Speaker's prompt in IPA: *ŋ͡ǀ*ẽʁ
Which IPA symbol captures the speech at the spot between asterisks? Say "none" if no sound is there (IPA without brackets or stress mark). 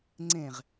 ŋ͡ǀ